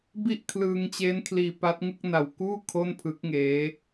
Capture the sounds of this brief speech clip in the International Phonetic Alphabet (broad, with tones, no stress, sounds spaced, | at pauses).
b i˥˩ ʔ kʰ l ɯː˧ ŋ t͡ɕ eː˦˥ n kʰ l iː˧ p a˦˥ t̚ ŋ ɯ˥˩ k̚ n a˨˩ w k uː˥˩ kʰ o˥˩ n pʰ ɯ˦˥ k̚ ŋ eː˦˥